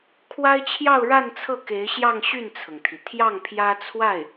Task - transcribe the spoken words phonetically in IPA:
kʰwa˥ɪ̯t͡ɕʰjɑ˥˧ʊ̯ɻa˥˧nt͡sʰɤ˥˩ ke˧˥ɪ̯ɕjɑ˥˧ŋ ɕy˥˩nt͡sʰɤ˩ŋt̪ʰi˩ t̪ʰjɑ˥˩ŋ pʰjä˥t͡sʰwa˥˩ɪ̯

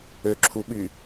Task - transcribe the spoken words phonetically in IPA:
øǁʰuɓy

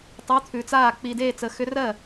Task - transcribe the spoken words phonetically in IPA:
tˤʉ˧˥˧t̪ʰʉ˧t͡saː˥˨ k͡pi˧deː˥˨t͡sə˧xʏ˦˥ rɜ˥˨

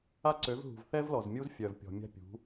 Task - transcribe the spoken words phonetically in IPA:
a˦ǀø˨˦vɦṳ˨v θɛ˦vlɔ˨zmʲu˦z fʲœ˨vpʲɔ̤˨mʲa̤˦pʲṳ˨˦

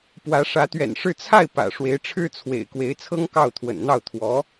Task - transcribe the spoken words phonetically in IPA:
pwä˧˥ ʂä˧˥t̪ɥɛ̰˨˩nʂɻ̩˥˧ t͡sʰa˥˩ɪ̯ pä̰˨˩ ʂwe˧˥ɪ̯ʈ͡ʂʰɻ̩˥t͡sʰwḛ˨˩ɪ̯ kwe˧˥ɪ̯t͡sʰɤ˥ŋ kɑ˥˩ʊ̯t̪ʰwə̰˨˩nn̪ɑ˥˩ʊ̯ t̪ʰwɔ˧˥

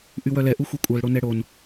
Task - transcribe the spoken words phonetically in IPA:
ʔywœlɛ ʔuxʷekʷʼœl ɽonɛɽon

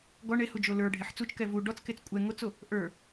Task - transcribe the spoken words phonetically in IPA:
ɡɔ ɳehud͡ʒo lə˞ ɖʱeħt͡sut͡ʃkɛ vu ɖɔt͡sket͡s kʷʼɛ ŋot͡so | ʔə˞

